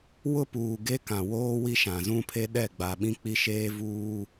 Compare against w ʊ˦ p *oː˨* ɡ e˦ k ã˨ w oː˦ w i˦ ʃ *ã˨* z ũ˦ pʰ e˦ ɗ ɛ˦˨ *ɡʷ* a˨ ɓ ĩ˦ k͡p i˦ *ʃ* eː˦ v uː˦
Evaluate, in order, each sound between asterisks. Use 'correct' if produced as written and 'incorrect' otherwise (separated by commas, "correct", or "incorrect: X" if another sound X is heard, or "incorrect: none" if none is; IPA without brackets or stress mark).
incorrect: uː˨, correct, incorrect: ɡ͡b, correct